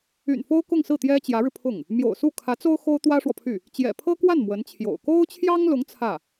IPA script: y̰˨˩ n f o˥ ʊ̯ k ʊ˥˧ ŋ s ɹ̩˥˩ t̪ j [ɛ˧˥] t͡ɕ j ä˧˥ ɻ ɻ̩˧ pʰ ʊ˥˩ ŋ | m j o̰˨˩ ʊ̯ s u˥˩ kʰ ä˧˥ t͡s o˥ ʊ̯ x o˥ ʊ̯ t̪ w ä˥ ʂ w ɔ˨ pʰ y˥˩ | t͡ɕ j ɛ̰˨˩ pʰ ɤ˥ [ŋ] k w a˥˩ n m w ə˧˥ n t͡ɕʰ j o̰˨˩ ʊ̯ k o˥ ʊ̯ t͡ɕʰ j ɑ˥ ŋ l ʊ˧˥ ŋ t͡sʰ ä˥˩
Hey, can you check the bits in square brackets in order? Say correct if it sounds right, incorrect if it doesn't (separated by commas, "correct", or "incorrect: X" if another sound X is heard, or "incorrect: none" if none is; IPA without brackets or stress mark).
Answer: incorrect: ɛ˥, incorrect: none